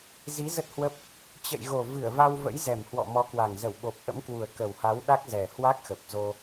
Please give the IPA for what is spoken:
zi˨˦ zə˦˥t̚hwə˦˥p̚ | t͡ɕə̰˧˨jɣo˨˩ vɨ˧˩ə̯va˧wvə̰˧˥j zɛ˨˩mhwɔ̰˧˨mɔ˨˦kwa˨˩ŋ zə˧˩wɓo˨˩p̚ʔə̰˧˥mkwu˨˩ə̯ kə˨˩wha˨˦w ɗa˦˥k̚ zɛ˨˩hwa˦˥k̚xə˨˩p̚ zo˧

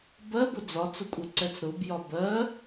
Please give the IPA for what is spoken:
bɜbʊ d͡zɒt͡sʊkʷʼɛǀɛt͡s ɾʊbjɒ bɜ

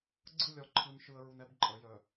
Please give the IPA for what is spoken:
ɡ͡ǀɯ˦˨lʲɒ˨ ǃʰɯ˨nʃɯ˨ə̯ɹu˨n ɛ˦bǃʼə˨˦jœ˨

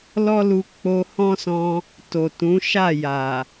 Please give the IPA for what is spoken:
lɔ˦lu˧ k͡po˧ hɔ̃˦sɔ̃˧ | to˨tũ˨˦ʃa˦˨ja˨

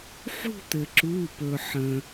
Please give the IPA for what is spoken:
ħṳ˥˧t̪ɘ˩ǁu˩˧˩pɵ˩ ħə̃˩

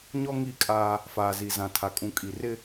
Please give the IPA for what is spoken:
ɲɔ˦ŋi˦˨kʼaː˦ | faː˨zi˨zã˨tʰa˨ kʼũ˨kʼi˨rɪ˦

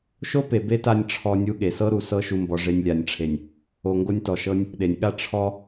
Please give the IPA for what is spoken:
ʃo˦ pe˨be˦ta˧nʲ ʈ͡ʂʰɔ˧ nʲu˦ɠe˨ sɤ˦ɾu˨ sɤ˦ ʃu˨mbɔ˨ ʐe˧nʲlʲa˨nʲʈ͡ʂʰe˨nʲ | o˧ŋɡo˦nʲtɔ˨ʃɤ˦nʲ | ɗe˨nʲɠa˦ ʈ͡ʂʰɔ˦

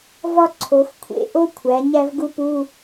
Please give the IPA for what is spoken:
vɒ˥ǀʰo˩˧x kʷʰḛ˧˥˧ʔo˥kʷʰæ˩˧ ɲæ˥vɡu˥pu˧˥˧

